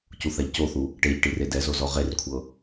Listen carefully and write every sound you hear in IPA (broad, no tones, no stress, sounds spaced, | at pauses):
c u θ a ʎ c o θ u | ʈ e ʎ ʈ i r e d ɛ z o z ɔ ʁ e r kʷʰ ɤ